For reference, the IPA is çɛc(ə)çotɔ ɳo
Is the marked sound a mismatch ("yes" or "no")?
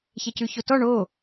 yes